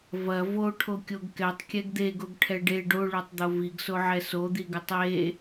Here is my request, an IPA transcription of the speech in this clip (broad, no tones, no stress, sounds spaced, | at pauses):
v ɐ v o ʈʰ o kʲ o ɡ k ɛ tˤ kʲ ɛ ɡ d̪ e ɡ o ɡ ʈʰ ɛ ɖ e ɖ o ɭ o tˤ d̪ o v i ɡ s o ʕ ɛ s o d̪ i ɡ ɐ tˤ e